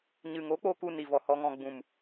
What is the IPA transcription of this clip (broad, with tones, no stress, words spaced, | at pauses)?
ɲɨ˨ŋo˨˦k͡poː˧ ku˧ni˨vɔ˨ hɔ˨ŋɔ̃˨ɡ͡bũ˨m